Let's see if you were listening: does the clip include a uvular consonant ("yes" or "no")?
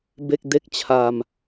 no